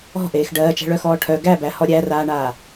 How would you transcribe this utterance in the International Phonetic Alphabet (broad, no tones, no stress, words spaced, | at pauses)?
ɔ̤ʔeːx ɖɜːt͡ʃæ̤ɭœxɔː ʈʰœ ɡæbæhɔ ɾʲæraːɳaː